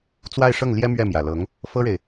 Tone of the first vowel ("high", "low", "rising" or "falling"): falling